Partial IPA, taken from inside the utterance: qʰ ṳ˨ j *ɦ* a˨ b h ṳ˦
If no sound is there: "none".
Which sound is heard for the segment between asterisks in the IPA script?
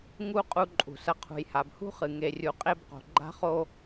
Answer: h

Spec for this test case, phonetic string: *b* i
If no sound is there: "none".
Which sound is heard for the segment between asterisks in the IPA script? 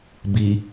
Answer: b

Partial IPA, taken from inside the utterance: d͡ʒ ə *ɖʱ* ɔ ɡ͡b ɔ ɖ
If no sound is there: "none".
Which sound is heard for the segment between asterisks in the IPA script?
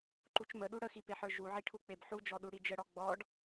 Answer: ɽ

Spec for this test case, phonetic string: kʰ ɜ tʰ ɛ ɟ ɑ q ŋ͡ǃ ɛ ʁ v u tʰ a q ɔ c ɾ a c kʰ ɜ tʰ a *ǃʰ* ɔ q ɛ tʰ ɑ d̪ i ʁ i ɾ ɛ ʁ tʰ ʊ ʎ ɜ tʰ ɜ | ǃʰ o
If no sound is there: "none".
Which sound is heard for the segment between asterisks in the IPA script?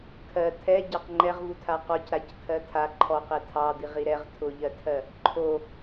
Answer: ǃʰ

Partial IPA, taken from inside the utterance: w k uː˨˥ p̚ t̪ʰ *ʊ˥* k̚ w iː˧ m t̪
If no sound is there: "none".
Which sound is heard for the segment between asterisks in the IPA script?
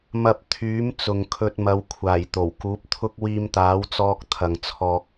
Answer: ʊ˥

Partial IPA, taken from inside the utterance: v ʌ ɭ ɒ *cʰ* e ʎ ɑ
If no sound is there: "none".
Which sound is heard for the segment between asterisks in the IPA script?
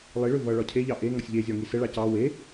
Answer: cʰ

